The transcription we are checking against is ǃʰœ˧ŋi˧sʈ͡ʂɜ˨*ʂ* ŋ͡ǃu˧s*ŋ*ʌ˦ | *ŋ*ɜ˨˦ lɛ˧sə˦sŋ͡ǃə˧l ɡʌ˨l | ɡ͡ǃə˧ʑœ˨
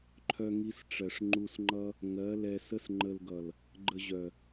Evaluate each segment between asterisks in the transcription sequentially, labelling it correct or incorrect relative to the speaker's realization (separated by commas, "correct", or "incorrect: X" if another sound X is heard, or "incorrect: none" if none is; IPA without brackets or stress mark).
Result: correct, incorrect: ŋ͡ǃ, correct